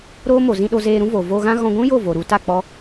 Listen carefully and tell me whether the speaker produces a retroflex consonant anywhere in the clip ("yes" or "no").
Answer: no